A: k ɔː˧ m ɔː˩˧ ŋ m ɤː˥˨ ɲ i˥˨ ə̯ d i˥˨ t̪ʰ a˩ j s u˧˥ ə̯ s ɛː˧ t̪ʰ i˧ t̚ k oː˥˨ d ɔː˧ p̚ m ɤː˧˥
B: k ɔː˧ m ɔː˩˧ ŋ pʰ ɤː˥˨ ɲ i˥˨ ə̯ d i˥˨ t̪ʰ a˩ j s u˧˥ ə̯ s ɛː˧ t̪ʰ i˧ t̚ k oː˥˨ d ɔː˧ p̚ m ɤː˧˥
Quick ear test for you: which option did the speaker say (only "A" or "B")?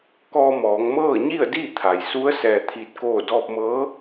A